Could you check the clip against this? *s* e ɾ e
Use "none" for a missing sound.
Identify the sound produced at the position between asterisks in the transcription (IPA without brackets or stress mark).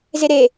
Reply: z